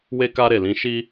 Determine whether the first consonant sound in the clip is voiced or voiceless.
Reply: voiced